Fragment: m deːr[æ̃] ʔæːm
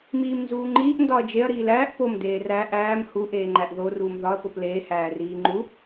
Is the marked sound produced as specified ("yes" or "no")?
no